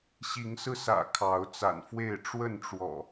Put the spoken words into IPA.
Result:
ɕ i˨˦ ŋ s ɹ̩˧ s ä̰˨˩ kʰ ɑ˨˦ ʊ̯ t͡s a̰˨˩ n f w e˥˨ ɪ̯ ʈ͡ʂ w ə˥˨ n ʈ͡ʂ w ɔ̰˨˩

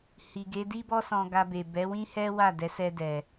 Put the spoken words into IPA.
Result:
h i˨ ɡ e˨˦ d i˦ b ɔ˦ s ɔ̃˧ ɡ a˧ b e˨ b ɛ˨˦ w ĩ˦ h ɛ˦ w a˦˨ d ɛ˨˦ s ɛ˧ d ɛ˨

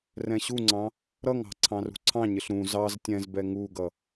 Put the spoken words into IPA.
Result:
r ɛ̃ ɕ u ŋ͡ǀ ɑ̃ | ɾ ʌ ŋ ɑ̤ ǀʰ ɑ̃ r ṳ ǀʰ ɑ̃ ɲ ɪ ɬ ɾ ũ z ɑ z tʲ ɛ̃ z b ɛ ŋ u ɡ ʌ

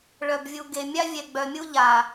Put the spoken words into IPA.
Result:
ɭ œ˨ b vʲ u˨ ɡ e˨ mʲ a˦ vʲ ɛ˨ ɡ͡b œ˨ mʲ u˦ ʎ a˨

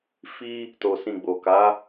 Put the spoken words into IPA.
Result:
f i˦ | t o˧ s ĩ˧ ɡ͡b o˨ k a˨˦

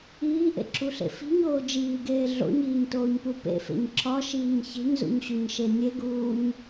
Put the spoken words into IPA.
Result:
iː ʔ ḛ ǁʰ u ɬ ḛ f i̤ ɲ oː d͡ʒ iː ɡ eː ɮ o̰ ɲ iː ɲ t oː ɲ p u p ḛ f ḛ ɲ ǁʰ ɒ ʃ iː ɲ ç e̤ ɲ z ṵ ɲ ɕ u ɲ ʃ e nʲ e ɡ uː ɲ

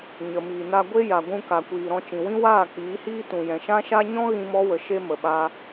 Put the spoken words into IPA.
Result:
ɲ ə˨ m iː˨ n a˧ ɡʷ e˦ j a˨ ɡʷ ũ˧ k a˨ kʷ iː˨ ɾ ɔ̃˧ t͡ʃ ĩ˨ w ĩ˦ w aː˦˨ k͡p iː˨˦ h iː˦ t ũ˨ j ɛ̃˨ ʃ ã˦ ʃ a˦ ɲ ɔ̃˦ ɣ ĩ˧ m ɔ˧ w ə˨ ʃ e˧ m ə˨ ɓ a˧

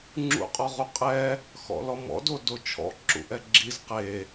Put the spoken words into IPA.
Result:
ŋ͡ǁ ṵ qʼ ɔ ʁ u qʼ ɛ | x ɔ̰ l ɔ m ɔ̰ d o d o t͡ʃʰ ɔ̰ ǁ ṵ ʔ ɛ ɡ͡ǁ i z q e

